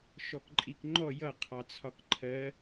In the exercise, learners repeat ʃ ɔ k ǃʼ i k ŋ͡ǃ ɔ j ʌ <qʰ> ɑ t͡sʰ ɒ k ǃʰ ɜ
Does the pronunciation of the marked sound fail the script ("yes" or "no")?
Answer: no